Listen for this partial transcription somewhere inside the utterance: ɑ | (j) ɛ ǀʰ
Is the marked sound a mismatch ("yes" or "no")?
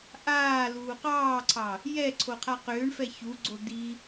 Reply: no